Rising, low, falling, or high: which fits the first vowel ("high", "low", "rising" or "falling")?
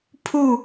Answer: falling